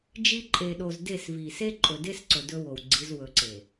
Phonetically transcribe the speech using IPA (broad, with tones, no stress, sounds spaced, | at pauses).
d͡ʒ i˦ ǃʼ e˨ ɗ o˨ z d e˦˨ s v i˨ s e˦ ǃʼ ɵ˨ d e˦ s ǀ ɵ˨ d ɵ˦ w o˨ w ɡ͡ǀ i˨˦ z w ɵ˨ ǀ e˨